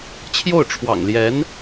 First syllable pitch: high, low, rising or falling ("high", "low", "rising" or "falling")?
falling